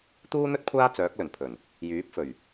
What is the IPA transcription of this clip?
t̪ uː˥ n̪ ɵ˥ t̚ kʷʰ aː˥ t͡s œː˨˥ k̚ l ɵ˨˩ n pʰ ɵ˨˩ n | j yː˨˥ p̚ f ɵ˨˩ ɥ

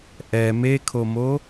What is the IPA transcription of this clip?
ʔ ɛ m e kʰ o m o

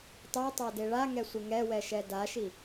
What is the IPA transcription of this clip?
tˤ e tˤ a d e ɭ a ŋ ɛ sʷ ɪ ŋ ɛ w ɛ ʃ ɛ d a ʃ i

